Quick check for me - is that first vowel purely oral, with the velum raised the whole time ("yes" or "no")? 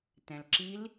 no